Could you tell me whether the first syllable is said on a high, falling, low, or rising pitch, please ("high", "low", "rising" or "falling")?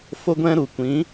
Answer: high